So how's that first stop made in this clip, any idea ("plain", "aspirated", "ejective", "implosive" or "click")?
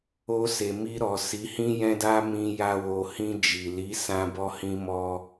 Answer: plain